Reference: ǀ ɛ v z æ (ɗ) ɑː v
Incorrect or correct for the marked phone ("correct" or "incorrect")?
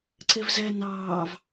incorrect